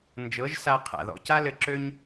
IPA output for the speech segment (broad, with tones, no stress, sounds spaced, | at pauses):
n d͡ʒ ɤ˨˦ ʒ s a˧ qʰ a̰˨ ð ɔ̰˧ c a˦ l ɘ˧ ǁ ø˦ ɲ